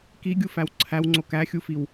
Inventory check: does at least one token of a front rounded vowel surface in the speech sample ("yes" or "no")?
no